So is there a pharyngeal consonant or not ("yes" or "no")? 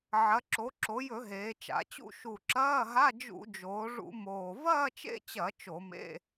yes